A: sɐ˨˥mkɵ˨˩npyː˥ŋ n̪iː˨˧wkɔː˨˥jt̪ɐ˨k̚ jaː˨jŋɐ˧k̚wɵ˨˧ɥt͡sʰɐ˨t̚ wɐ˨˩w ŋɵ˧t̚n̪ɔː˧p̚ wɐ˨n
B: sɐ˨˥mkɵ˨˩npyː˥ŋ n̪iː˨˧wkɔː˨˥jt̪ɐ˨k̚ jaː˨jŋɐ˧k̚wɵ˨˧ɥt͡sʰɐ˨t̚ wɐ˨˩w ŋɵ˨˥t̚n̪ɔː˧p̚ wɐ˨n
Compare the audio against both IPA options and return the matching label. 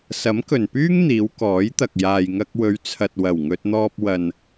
A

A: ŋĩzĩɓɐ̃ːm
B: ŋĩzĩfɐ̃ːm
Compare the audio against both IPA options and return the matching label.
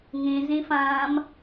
B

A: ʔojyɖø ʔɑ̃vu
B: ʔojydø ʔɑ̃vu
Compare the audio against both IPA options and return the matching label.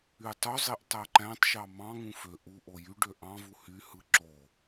A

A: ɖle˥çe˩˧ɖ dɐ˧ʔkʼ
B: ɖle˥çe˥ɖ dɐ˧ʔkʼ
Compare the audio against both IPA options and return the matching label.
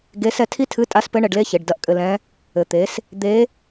A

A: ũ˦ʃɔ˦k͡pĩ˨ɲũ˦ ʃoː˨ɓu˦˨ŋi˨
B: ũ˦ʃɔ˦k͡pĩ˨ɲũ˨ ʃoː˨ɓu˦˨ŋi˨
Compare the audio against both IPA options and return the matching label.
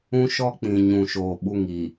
B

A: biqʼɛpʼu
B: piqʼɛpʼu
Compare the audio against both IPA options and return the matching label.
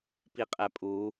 B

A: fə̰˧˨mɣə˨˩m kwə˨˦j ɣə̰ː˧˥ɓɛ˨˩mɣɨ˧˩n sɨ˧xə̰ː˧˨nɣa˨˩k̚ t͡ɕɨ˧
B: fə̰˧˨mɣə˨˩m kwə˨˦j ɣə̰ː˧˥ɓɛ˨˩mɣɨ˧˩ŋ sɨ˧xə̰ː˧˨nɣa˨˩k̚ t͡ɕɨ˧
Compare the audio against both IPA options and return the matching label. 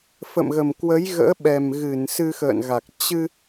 A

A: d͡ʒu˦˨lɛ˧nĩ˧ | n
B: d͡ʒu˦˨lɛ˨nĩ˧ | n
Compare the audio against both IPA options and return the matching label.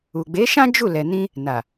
B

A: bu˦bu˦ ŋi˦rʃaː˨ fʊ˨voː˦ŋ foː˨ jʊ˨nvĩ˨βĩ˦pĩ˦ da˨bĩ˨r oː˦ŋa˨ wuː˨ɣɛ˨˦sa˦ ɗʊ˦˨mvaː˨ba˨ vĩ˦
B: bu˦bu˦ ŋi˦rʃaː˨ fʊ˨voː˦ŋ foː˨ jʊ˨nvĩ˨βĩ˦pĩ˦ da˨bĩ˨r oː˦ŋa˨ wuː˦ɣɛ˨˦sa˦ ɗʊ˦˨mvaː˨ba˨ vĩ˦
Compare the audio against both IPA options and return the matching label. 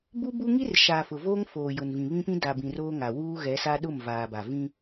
B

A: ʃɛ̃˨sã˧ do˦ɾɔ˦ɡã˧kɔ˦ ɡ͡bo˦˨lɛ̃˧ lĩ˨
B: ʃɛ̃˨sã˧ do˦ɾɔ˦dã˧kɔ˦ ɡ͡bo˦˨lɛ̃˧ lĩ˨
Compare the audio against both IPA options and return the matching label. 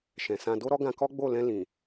A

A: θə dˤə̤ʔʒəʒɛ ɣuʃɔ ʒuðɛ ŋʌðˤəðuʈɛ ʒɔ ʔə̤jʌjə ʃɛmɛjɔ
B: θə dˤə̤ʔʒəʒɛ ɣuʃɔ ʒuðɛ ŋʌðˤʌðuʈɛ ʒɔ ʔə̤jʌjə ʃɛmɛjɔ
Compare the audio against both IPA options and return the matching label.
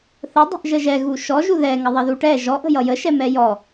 B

